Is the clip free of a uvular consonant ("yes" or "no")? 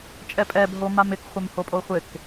no